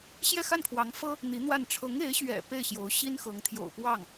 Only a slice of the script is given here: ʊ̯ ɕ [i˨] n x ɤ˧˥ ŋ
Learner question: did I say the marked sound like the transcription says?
no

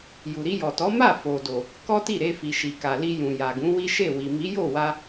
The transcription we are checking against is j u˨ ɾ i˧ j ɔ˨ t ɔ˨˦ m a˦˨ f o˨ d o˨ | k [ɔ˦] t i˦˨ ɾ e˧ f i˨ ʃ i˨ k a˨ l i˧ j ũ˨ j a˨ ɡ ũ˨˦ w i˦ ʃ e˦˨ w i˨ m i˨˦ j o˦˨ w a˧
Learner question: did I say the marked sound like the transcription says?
yes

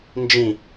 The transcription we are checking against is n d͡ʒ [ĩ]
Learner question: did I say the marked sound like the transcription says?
yes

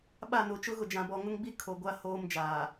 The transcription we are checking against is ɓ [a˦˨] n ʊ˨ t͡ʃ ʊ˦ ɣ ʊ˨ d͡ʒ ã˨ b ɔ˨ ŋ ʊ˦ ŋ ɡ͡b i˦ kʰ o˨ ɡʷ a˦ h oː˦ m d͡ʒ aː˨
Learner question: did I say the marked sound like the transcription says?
yes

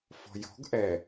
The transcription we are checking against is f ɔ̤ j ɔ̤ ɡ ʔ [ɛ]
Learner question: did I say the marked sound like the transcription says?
yes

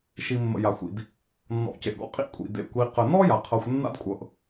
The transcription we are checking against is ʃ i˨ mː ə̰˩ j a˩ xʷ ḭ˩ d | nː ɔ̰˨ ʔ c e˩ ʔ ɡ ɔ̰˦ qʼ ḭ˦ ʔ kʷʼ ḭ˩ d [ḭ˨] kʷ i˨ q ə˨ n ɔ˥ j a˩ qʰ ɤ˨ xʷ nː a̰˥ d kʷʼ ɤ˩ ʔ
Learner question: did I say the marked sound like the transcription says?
no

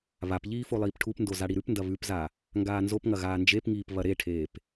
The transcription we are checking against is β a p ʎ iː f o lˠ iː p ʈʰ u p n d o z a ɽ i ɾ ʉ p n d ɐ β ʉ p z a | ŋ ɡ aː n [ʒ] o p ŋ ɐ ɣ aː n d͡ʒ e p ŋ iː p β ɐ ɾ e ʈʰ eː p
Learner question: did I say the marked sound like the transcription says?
no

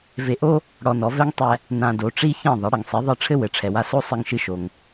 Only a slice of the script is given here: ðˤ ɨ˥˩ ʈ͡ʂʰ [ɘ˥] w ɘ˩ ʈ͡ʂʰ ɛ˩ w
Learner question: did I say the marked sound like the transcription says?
yes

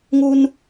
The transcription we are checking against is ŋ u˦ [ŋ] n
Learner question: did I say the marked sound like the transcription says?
no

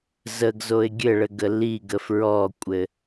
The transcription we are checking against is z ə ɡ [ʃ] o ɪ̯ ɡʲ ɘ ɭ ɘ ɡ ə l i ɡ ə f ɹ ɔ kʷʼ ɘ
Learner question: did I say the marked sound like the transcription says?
no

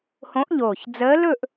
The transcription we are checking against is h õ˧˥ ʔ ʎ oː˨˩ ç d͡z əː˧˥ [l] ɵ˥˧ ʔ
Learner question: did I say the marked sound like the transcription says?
yes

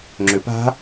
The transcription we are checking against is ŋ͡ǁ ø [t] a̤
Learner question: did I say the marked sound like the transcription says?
no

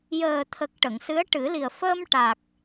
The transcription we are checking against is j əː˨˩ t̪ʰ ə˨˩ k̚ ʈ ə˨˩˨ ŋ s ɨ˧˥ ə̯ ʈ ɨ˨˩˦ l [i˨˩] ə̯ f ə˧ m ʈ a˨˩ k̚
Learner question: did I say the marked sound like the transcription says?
yes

